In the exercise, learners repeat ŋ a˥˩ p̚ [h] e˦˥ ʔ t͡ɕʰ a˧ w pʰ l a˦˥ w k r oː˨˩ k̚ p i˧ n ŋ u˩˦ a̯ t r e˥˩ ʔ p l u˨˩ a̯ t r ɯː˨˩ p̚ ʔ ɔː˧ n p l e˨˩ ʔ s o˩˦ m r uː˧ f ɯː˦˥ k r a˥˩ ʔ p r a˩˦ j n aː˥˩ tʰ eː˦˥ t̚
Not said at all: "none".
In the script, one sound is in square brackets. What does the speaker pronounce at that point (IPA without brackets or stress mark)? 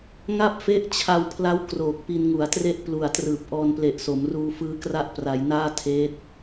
f